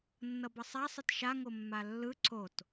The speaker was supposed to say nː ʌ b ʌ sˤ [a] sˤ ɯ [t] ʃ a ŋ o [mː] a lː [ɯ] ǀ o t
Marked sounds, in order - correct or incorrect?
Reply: correct, correct, correct, correct

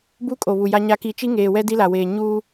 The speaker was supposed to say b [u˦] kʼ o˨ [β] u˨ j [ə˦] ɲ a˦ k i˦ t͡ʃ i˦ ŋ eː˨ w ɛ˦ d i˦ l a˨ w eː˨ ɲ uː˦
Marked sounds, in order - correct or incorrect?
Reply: correct, correct, incorrect: a˦

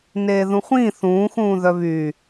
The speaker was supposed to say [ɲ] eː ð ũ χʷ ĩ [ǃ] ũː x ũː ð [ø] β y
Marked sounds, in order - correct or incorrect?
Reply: incorrect: n, incorrect: θ, incorrect: œ

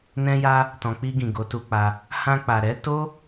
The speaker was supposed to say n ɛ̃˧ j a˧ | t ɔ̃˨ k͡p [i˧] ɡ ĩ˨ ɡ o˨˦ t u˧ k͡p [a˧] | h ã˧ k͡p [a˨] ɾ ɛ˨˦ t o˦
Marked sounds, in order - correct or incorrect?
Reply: correct, correct, correct

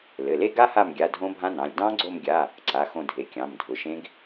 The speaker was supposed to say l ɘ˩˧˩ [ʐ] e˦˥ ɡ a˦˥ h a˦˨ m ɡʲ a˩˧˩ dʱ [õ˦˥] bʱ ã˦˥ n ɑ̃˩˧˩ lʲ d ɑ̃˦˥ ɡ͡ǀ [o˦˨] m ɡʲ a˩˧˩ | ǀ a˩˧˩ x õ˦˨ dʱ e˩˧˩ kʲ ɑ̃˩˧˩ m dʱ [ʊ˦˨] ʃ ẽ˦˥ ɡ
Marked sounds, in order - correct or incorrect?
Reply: incorrect: l, correct, correct, incorrect: ʊ˩˧˩

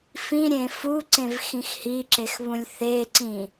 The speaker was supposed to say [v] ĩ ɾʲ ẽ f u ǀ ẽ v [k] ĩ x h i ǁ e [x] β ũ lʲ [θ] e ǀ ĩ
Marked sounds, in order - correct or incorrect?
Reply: incorrect: f, incorrect: x, correct, correct

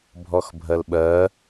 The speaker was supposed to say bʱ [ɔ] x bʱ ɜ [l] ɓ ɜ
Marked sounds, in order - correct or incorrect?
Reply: correct, correct

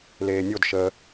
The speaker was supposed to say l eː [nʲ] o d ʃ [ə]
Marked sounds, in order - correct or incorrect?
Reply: correct, incorrect: əː

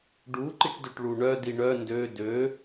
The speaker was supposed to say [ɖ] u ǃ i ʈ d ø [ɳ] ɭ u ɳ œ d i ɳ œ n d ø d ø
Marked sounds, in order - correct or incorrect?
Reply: correct, incorrect: ʈ

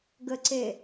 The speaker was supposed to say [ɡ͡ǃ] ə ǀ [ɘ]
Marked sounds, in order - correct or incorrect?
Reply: incorrect: ɡ, incorrect: e

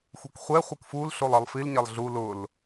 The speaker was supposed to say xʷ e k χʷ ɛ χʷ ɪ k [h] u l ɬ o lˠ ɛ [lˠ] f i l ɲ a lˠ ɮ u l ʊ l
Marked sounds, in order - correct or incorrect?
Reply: incorrect: f, correct

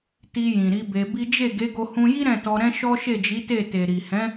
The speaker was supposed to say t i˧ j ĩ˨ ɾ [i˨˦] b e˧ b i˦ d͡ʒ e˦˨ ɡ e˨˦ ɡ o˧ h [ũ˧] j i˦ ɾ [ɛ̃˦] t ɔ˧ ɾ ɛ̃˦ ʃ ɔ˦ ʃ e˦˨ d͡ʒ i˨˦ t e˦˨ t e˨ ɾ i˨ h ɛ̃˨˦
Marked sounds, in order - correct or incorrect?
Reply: correct, correct, incorrect: ɛ̃˦˨

